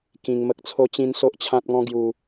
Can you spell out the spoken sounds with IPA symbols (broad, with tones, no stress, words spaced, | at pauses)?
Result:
kĩ˧ŋmə˦k̚ t͡sʰo˦t͡ɕĩ˦n so˦ʔt͡ɕʰã˦t̚ŋɔ̃˦ ɡju˧